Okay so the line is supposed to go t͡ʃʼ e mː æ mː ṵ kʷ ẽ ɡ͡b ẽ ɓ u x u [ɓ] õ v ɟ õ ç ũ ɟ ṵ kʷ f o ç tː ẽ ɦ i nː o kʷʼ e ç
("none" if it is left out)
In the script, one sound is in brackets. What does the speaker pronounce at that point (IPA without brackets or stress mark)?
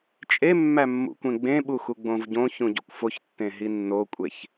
ɡ͡b